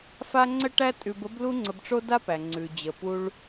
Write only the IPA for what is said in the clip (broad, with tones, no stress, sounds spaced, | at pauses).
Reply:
f a˥ ŋ͡ǀ ə˥ ʈ æ˥ tʼ ʉ˧ b ə˥ b l u˥ ŋ͡ǀ ə˧ b ʈ͡ʂ o˥ d a˥ p æ˩ ŋ͡ǀ ʉ˩ d͡ʑ ə˩ p u˧ ɭ